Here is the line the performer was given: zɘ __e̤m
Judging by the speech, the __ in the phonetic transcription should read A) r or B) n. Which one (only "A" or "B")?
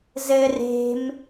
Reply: A